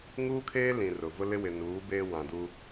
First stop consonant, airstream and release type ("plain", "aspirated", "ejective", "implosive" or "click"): aspirated